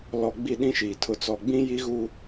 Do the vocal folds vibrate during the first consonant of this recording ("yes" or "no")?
yes